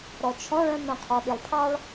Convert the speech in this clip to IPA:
ɾ ɔ t͡ʃʰ ɔ̃ ɭ œ̃ m œ̃ qʰ ɔ ɗ i lˠ pʰ ɑ ɭ

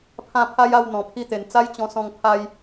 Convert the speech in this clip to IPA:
pʰ ã˥˧ pʰ a˦ j a˥˧ w n̪ ɔ̃˨˩ pʰ i˦ t̪ e˨˩ n t͡s a˦ j t͡ɕ ɔ̃˧ s ɔ̃˧ ŋ pʰ a˦ j

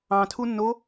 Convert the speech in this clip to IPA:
ɑ̃ tʰ u nː o

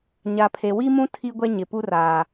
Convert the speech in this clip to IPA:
ɲ a˨ pʰ e˨ w i˦ m ũ˦ tʰ i˦ ɡʷ ɛ˦ ɲ ɪ˨ p u˦ r aː˨

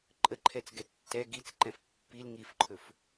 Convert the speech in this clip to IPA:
ǃʼ ə ǃʰ ɛ t͡s ɡ ɛ tː ɛ ɡ i t͡s ǃ ɛ̃ f pː i l ŋ i f ǃʰ ɵ f

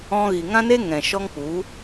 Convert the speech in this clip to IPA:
ɔ̃˧ ɣ i˨ ŋ ã˦ n e˦ ŋ ɛ̃˨ ʃ ɔ˦ ŋ k͡p u˨˦

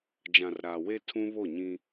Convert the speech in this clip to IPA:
d͡ʒ ã˨ r ɾ aː˨ w e˦ tʰ ũ˦ β o˦˨ ɲ ĩ˦

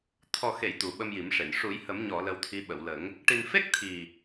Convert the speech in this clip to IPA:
t̪ʰ ɔ˨˩ x e˨˩˨ j t̪ u˨˩ ɓ ə˧ m j i˨˩˦ m ʂ e˨˩˨ n ʂ u˨˩˦ j h ə˨˩˦ m ɲ ɔ˨˩˨ l ə˧ w t̪ʰ i˧˥ ɓ ə˨˩˨ w l ə˨˩˦ ŋ | ʈ i˨˩ n f e˦˥ k̚ t̪ʰ i˨˩

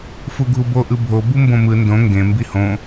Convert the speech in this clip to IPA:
f u ɡʱ u b o ʔ ɯ bʱ o b u m b õ m ɯ n d õ ŋ ɡ ẽ m b i h õ

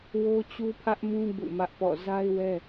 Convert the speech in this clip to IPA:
w o˦ t͡ɕ u˦ pʰ ä˦ ʔ m ũ˦ b ṵ˦˨ m ä˦ ʔ p ɔ̰˦˨ z a˦ ɪ̯ w ɛ˦

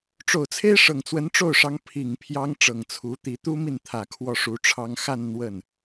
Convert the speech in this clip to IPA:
ʈ͡ʂ o˨˩ ʊ̯ t͡sʰ e˥ ɪ̯ ʂ ɤ˨˩ ŋ t͡s w ə˧˥ n ʈ͡ʂ o˥˩ ʊ̯ ʂ ɑ˧˥ ŋ pʰ i˨˩ ŋ pʰ j ɑ˥ ŋ ʈ͡ʂ ɤ˨˩ ŋ t͡sʰ u˧˥ t̪ i˧˥ t̪ u˥ m i˥˩ n t̪ʰ ä˨˩ kʰ w ɔ˥˩ ʂ u˧˥ ʈ͡ʂʰ ɑ˥ ŋ x a˥˧ n n̪ w ə˥˩ n

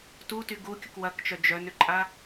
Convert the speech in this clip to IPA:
t u t y ɡ u kʲ ʊ k w ɐ k t͡ʃ œ d͡ʒ œ n ʏ ǃʼ a

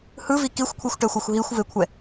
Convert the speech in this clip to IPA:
h ɯ v i k i xʷ kʷʰ i xʷ ʈ ɛ xʷ ɛ xʷ ɦ i xʷ v e kʷʰ ɛ

